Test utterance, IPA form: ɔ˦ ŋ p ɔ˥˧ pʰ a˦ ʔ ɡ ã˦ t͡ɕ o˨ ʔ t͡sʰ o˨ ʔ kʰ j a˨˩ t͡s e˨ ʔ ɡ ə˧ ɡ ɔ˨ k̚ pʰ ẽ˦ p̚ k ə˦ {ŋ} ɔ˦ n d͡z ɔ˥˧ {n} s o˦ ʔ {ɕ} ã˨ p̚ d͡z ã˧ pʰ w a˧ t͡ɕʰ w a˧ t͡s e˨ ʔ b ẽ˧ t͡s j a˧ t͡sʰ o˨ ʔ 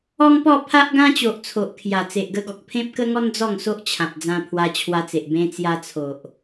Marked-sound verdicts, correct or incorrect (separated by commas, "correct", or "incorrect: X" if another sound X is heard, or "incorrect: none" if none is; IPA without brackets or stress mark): correct, incorrect: ŋ, incorrect: t͡ɕʰ